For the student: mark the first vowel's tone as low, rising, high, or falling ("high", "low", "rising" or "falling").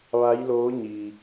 rising